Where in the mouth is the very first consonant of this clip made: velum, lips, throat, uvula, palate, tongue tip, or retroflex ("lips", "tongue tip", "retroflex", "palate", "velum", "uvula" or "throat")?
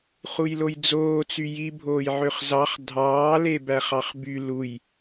uvula